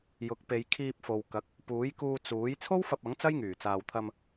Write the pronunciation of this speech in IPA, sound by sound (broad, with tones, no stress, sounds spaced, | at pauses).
j ʊ˨˥ k̚ p e˨˧ j kʰ iː˧ p̚ f o˨ w k ɐ˨˥ k̚ | p uː˨˥ j k uː˧ t͡s uː˨˥ j t͡sʰ o˥ w f ɐ˧ p̚ ɐ˨˥ ŋ t͡s ɐ˥ j ŋ yː˨˩ t͡s aː˨ w t̪ʰ ɐ˧ m